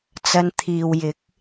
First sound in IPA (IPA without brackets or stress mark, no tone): t͡s